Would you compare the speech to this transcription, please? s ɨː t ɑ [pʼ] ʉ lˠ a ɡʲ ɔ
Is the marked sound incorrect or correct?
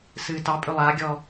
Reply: correct